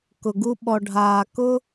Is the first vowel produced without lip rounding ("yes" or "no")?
no